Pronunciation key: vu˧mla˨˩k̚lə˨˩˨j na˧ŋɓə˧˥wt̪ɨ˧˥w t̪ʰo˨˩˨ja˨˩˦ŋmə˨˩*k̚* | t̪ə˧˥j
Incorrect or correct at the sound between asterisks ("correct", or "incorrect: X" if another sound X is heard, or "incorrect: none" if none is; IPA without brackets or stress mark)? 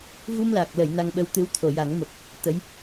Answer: correct